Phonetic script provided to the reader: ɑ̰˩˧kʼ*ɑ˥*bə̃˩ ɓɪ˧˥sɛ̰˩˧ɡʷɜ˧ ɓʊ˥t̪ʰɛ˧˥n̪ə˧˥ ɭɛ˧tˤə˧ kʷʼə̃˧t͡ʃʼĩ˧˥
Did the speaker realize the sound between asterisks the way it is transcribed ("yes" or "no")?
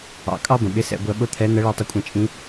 yes